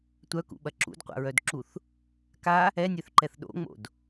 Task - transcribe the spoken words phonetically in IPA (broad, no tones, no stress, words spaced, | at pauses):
tʷœkṵɓɐ ǁṵdqʷa̰ɹœdǁuθ | ka | ɛnʲœθǃɛθ ɗo̰ŋ͡mo̰d